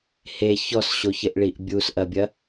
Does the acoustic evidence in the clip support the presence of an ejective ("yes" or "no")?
no